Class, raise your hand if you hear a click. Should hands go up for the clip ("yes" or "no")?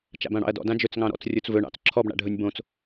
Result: yes